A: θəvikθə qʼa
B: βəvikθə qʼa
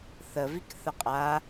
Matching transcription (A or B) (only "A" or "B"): A